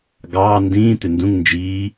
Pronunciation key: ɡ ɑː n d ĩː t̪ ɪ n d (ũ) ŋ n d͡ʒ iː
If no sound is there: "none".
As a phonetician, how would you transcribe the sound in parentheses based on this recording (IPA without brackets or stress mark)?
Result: ũ